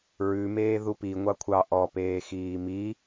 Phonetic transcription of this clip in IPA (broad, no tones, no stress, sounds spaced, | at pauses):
ɹ ʉ m eː ð u p i ŋʷ ɑ kʷʰ ɑ ʔ ɔ p eː x iː m i